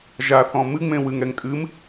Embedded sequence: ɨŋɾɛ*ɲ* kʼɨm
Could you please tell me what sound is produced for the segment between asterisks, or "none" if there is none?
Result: ŋ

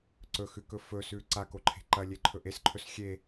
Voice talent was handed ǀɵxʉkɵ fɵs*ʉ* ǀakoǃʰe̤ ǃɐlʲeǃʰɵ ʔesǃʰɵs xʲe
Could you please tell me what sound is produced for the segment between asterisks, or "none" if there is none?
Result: ʉ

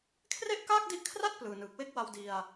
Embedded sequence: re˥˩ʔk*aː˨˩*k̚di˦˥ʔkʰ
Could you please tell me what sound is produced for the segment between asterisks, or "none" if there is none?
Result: aː˥˩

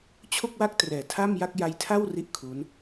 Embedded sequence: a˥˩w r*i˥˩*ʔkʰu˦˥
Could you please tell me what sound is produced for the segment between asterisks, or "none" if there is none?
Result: i˥˩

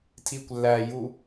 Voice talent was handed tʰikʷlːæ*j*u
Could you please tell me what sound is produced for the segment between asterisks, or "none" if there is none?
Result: j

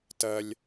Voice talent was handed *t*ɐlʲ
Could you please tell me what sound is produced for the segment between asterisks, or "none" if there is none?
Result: t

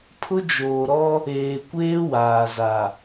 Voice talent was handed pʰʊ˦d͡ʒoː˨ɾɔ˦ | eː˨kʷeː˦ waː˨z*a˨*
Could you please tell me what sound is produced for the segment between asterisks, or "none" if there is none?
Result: a˨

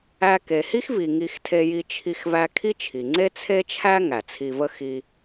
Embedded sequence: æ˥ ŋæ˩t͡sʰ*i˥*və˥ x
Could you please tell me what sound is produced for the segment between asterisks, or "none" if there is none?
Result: i˧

